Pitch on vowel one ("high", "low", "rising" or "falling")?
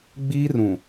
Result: high